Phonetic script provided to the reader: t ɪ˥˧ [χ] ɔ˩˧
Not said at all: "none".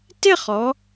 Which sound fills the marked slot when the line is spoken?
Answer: χ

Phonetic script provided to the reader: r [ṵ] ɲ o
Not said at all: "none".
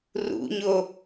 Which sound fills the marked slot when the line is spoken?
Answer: ṵ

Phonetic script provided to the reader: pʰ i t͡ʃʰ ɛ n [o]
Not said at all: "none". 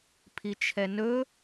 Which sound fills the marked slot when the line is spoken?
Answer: ɵ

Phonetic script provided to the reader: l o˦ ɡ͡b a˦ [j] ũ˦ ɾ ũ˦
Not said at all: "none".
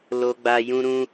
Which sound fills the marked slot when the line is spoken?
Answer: j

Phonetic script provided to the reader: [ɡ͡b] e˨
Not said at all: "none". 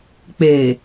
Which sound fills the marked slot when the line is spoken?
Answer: k͡p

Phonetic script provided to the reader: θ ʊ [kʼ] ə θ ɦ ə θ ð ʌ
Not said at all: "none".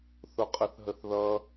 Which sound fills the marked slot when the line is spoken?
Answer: qʼ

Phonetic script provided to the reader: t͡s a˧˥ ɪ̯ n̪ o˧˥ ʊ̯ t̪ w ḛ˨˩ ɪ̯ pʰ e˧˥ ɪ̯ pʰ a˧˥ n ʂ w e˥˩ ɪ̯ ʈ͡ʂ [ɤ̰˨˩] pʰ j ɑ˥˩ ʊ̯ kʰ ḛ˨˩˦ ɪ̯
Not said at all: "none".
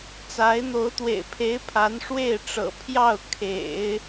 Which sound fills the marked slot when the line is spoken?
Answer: ɤ̰˨˩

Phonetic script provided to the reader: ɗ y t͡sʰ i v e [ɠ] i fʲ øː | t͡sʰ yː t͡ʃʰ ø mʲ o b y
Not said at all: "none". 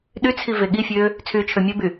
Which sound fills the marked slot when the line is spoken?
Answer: ɠ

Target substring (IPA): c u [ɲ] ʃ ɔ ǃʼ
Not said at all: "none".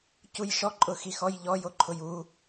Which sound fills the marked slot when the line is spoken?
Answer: j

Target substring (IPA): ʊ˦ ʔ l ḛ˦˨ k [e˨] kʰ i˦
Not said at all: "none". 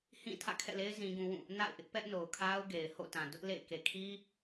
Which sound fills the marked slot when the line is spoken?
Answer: e˨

